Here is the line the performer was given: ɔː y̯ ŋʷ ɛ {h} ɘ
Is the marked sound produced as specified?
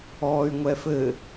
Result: no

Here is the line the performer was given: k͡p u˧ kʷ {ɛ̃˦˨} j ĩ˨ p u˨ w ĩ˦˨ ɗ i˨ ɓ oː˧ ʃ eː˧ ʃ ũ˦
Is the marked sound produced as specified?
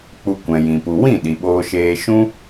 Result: no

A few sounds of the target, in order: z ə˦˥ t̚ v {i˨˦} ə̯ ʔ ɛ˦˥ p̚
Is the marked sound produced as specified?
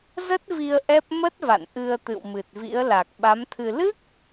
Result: no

